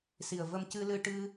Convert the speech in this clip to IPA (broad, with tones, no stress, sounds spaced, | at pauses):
s i˨˩ ə̯ v ə˧ m c ɨ˧ l ɨ˧ ʈ ɨ˧